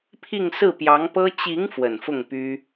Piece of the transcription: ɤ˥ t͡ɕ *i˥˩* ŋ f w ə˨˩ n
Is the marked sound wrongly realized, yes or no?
yes